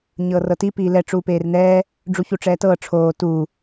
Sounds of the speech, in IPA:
ɲɤːrɤti piːlɛ ʈ͡ʂuːpeːrnɛː | ɖ͡ʐuçuʈ͡ʂɛːtɤː ʈ͡ʂʰoː tuː

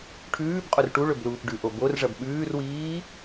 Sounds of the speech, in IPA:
ʈʰʉːbqʼor ʈu ɭɵbluːpɖʉʔo borʐɐb ɓʉːrwiː

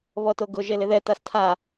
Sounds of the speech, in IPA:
βɔtoɡʊ ʒelɪðɛ tastʰa

